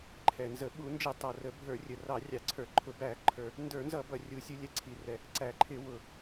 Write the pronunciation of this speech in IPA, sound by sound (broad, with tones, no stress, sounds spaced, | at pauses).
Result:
ǃʰ ɛ˨˩ n z ə˧˩˧ ɓ u˧˩˧ n d͡ʒ ɪ˧˩˧ tˤ ʌ˨˩ r ə˧˩˧ bʱ ə˞˧˩˧ rʲ ə˨˩ r ɑ˧˩˧ rʲ ɑ˧˩˧ ǀʰ ə˞˧˩˧ ǃʰ ʊ˧˩˧ b æ˧˩˧ ǃʰ ə˞˨˩ | n d ə˞˧˩˧ n z ʌ˧˩˧ b ʌ˨˩ rʲ u˨˩ sʲ u˧˩˧ lʲ ɛ˨˩ ǀʰ i˨˩ r ɛ˨˩ | ǀ æ˨˩ ǃʰ ɪ˧˩˧ w ʊ˨˩